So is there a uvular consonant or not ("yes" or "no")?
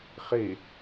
yes